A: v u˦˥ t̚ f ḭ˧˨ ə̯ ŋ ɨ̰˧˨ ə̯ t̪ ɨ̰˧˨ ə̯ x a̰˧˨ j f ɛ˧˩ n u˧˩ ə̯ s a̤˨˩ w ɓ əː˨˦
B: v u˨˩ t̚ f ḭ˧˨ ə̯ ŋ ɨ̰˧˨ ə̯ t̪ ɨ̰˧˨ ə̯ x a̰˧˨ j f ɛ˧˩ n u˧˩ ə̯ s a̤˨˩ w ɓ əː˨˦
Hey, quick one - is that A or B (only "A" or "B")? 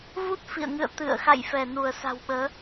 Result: A